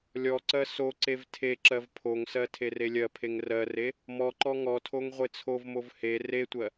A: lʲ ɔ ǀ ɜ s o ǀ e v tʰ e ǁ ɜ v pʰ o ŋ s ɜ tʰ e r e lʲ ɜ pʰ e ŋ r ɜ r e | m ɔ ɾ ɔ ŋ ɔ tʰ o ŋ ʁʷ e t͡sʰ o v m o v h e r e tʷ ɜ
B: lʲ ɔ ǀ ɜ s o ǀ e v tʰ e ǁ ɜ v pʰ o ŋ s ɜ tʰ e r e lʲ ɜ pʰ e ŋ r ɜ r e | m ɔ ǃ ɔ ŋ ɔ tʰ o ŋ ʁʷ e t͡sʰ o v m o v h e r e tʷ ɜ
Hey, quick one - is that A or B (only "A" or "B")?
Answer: B